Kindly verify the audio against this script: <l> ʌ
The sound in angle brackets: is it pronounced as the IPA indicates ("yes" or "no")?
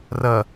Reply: no